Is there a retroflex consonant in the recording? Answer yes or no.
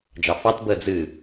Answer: no